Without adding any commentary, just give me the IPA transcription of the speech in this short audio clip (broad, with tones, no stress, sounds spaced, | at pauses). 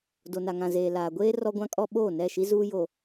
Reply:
d o˨ n a˨ ŋ ã˨ z eː˨ l aː˨ ɡʷ eː˦ r ɔ˦ ɡʷ ã˦ kʼ ɔ˦ ɓ oː˦˨ n ɛ˦˨ ʃ i˦ z uː˦ j o˨